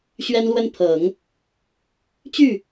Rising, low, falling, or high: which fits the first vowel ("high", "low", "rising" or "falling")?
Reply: high